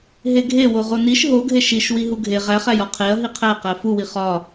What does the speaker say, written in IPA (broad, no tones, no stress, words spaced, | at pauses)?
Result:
ɦeɡʱewo ʁoniʃ ɦoɡʱe ʃiʃwi ɦuɡʱe ʁæχæj ɒqʰeɐ̯ ɦiqʰæqæ fuwi χɒ